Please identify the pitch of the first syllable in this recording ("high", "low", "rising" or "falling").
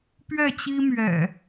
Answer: falling